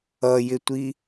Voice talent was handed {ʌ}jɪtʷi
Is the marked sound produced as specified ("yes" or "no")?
yes